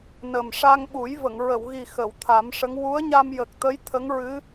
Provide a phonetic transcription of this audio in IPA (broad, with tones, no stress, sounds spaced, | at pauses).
n ə˨˩ m ʂ a˧ ŋ ɓ u˨˩˦ j v ə˨˩˨ ŋ ɹ ə˨˩˨ w ɣ i˨˩ x ə˨˩˨ w t̪ʰ a˨˩˦ m ʂ ə˧˥ ŋ w u˧˥ ə̯ ɲ a˧ m j ə˨˩ k̚ t̪ ə˧˥ j t̪ʰ ə˧˥ ŋ ɹ ɨ˧˥